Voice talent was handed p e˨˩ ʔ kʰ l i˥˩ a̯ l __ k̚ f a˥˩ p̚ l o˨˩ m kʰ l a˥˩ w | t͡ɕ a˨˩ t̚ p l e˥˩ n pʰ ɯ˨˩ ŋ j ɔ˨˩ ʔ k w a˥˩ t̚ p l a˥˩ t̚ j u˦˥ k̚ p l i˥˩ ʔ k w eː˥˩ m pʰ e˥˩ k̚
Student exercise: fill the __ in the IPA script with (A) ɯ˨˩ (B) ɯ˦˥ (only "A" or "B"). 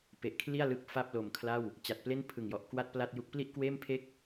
B